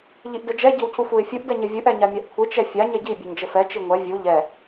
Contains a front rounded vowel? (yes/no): no